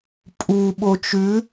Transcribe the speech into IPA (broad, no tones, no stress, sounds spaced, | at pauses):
pʼ u ɓ o t͡ʃ ʉ